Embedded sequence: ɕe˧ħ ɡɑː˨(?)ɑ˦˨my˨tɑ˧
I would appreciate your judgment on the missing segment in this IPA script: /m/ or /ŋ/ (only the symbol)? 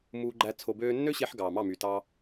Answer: m